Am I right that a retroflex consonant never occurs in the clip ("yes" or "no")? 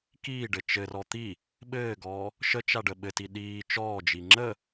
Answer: no